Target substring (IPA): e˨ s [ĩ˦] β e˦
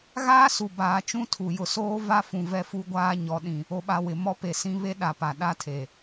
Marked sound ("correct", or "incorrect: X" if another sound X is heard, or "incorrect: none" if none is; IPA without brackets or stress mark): correct